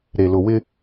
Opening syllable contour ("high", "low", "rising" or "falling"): low